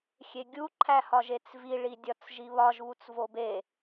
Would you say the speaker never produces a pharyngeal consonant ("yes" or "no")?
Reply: yes